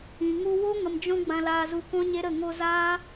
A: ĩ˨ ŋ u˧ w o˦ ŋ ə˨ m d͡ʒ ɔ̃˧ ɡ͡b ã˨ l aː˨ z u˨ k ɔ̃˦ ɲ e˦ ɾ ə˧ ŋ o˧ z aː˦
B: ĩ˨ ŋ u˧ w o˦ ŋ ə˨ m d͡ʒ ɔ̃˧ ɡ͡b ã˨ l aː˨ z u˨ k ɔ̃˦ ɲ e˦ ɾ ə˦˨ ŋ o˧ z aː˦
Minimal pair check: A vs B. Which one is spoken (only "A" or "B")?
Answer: B